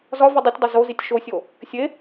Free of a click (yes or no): yes